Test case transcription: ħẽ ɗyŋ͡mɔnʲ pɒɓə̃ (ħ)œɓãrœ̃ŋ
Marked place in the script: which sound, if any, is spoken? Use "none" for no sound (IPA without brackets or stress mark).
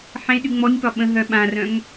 ɦ